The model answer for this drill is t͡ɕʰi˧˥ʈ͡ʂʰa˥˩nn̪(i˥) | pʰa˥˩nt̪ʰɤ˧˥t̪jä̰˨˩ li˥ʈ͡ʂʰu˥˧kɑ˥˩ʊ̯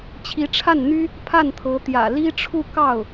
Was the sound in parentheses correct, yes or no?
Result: no